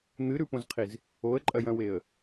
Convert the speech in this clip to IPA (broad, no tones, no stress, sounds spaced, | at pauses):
n̪ ɨ ɾ ʉ p õ z qʰ i z | o ə̯ ǃʼ ɐ j ɐ̃ w e ə̯